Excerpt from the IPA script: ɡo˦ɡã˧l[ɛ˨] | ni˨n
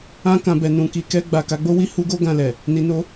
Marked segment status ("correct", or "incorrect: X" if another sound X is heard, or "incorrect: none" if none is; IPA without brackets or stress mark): correct